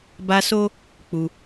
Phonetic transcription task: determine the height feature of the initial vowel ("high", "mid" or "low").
low